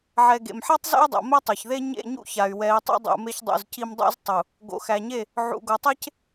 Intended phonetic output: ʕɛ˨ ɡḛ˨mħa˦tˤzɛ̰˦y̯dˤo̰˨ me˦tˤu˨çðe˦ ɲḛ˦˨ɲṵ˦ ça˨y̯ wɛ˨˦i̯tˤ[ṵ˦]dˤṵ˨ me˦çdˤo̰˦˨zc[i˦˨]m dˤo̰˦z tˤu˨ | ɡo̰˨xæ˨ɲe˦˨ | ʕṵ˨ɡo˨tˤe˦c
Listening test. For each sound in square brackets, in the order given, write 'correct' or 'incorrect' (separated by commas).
correct, incorrect